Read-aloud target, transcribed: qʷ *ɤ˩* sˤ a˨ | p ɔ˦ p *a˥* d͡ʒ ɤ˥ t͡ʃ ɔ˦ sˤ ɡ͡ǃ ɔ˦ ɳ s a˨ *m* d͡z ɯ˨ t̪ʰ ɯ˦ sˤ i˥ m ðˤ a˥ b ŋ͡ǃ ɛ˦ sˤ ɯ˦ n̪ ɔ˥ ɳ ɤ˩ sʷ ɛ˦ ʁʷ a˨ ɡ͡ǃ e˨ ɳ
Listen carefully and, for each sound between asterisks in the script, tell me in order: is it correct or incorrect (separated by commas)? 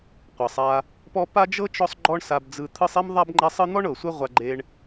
correct, correct, incorrect